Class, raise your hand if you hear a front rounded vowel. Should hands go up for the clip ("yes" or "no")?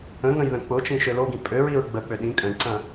yes